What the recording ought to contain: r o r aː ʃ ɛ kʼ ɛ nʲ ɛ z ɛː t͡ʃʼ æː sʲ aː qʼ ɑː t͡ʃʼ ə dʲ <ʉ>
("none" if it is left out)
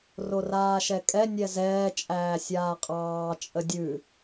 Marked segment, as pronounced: ʉ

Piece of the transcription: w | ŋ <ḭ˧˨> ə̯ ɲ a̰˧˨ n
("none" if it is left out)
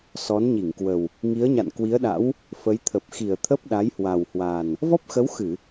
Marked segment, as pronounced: i˨˦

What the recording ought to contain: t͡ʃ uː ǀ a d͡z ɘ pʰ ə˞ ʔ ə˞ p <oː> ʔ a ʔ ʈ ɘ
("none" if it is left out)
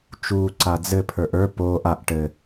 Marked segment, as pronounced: oː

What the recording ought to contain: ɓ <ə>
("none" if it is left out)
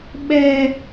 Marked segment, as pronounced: ɛ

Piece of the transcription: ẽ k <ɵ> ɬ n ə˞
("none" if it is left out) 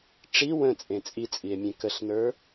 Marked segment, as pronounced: ə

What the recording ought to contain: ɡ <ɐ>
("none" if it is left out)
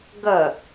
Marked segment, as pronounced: ɐ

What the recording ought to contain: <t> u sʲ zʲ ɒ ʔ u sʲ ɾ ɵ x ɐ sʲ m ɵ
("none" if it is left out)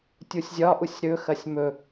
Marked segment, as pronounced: tʲ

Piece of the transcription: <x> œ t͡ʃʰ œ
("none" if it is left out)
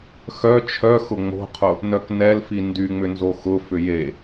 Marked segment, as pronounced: x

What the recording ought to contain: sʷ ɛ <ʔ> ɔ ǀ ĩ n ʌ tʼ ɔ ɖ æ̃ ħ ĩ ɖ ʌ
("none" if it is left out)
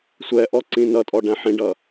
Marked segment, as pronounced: ʔ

